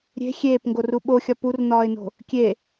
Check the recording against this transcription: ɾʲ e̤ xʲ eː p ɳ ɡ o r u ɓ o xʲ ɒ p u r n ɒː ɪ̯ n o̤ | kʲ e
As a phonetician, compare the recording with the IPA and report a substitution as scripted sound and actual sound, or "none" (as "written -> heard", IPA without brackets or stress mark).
ɳ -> ŋ